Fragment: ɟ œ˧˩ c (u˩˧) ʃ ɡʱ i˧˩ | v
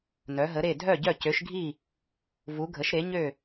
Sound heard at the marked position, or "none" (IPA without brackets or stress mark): ø˩˧